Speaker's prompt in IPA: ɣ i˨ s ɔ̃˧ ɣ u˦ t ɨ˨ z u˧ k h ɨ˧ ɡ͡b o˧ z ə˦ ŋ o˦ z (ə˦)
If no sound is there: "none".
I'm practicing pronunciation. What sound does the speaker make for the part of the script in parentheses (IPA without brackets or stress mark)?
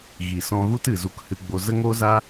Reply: a˦